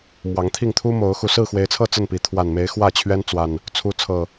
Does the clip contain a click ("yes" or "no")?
no